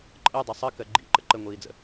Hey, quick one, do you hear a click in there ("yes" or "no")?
yes